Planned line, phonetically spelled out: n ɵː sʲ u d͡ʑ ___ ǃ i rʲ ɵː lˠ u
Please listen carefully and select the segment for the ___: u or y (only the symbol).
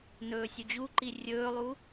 u